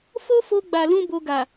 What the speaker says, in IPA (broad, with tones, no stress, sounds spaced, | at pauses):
f o˦ f o˧ ɡ͡b a˨ l ũ˧ b o˧ ɡ a˨